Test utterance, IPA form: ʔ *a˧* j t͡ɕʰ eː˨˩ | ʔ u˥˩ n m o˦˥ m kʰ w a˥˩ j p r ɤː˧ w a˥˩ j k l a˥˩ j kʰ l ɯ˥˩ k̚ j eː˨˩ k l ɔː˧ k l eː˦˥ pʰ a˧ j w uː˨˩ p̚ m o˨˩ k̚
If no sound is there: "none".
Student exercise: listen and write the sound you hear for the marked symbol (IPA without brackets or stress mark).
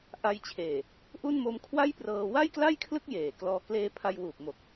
a˧